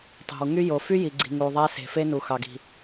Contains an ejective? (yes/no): no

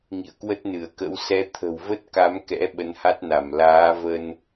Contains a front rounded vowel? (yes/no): no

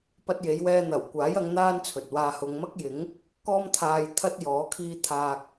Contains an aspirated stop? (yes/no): yes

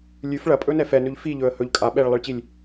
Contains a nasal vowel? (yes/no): no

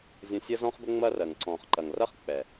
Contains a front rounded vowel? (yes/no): no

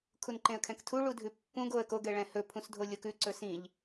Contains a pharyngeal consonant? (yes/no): no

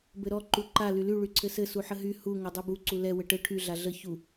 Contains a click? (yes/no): yes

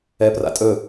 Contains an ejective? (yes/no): yes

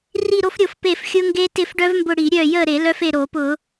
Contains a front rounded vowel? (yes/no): yes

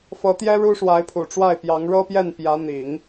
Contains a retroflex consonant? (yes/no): yes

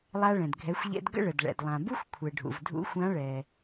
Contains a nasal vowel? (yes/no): yes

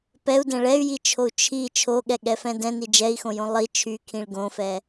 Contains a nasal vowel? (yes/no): yes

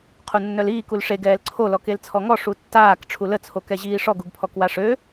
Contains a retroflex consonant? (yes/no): yes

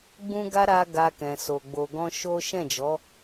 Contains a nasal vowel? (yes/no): yes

